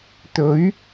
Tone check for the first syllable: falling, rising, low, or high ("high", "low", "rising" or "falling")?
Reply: rising